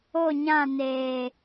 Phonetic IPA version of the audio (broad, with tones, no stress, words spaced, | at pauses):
o˦˨ɲã˦˨ neː˨